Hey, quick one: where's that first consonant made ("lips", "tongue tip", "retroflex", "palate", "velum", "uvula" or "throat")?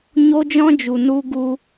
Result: palate